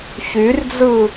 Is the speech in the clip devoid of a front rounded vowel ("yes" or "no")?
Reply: no